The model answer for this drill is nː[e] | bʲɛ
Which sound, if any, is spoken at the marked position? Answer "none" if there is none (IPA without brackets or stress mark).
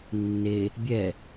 e